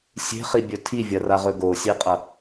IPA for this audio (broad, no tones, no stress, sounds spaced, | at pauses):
sʲ e̤ χ i bʲ ɵ tʰ i vʲ ɐ r a ʁ ɵ ɡ o sʲ e qʼ ɐ